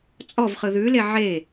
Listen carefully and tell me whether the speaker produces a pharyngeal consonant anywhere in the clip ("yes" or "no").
yes